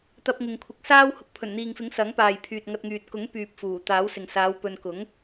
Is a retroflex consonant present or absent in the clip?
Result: absent